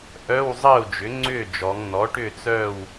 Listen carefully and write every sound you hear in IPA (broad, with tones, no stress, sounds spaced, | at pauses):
ʔ œ˧˥˧ w zˤ əː˥˨ u̯ d͡ʒ ʏ˩˥ ŋ͡ǀ ʏː˥˨ d͡ʒ ɔ˩˧ ŋ n̪ ɔ˩˥ ʈ ʏ˥˨ t͡s œ˥˨ w